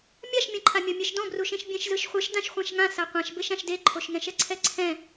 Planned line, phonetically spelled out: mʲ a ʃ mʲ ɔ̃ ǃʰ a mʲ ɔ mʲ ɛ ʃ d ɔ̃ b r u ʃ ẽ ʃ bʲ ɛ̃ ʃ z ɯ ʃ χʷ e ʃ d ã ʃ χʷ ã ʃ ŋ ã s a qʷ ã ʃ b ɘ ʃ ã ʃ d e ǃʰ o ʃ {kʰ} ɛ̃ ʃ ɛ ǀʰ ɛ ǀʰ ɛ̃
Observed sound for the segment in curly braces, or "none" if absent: ŋ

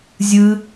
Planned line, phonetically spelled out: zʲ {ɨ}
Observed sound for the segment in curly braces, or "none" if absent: ɨ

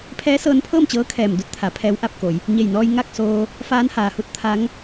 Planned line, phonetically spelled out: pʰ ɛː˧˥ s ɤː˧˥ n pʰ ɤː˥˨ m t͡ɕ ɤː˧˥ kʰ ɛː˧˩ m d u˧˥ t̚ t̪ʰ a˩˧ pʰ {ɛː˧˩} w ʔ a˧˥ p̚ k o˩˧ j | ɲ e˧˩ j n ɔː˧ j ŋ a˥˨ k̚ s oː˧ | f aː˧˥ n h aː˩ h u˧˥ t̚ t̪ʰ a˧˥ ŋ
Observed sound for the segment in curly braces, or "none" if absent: ɛː˧˥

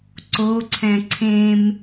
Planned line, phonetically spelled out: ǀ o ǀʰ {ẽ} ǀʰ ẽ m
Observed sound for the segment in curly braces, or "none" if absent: ɛ̃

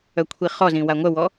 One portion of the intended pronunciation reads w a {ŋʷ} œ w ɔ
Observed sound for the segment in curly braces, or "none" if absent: ŋʷ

